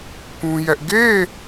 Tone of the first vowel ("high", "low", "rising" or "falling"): high